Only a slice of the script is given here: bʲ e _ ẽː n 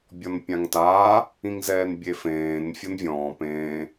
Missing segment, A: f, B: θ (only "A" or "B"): A